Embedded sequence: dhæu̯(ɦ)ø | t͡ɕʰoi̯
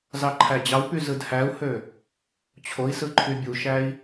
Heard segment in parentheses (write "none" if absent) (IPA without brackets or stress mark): h